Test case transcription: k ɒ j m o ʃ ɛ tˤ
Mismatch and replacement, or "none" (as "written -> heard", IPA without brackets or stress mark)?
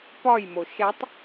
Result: k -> p